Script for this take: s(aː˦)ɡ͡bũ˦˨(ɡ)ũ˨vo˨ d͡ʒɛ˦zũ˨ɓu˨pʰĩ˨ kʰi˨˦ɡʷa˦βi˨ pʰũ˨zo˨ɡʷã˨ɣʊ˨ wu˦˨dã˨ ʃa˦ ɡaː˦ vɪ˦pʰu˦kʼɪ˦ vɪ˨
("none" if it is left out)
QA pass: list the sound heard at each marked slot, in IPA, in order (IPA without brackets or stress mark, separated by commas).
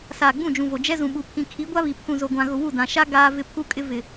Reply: aː˨, d͡ʒ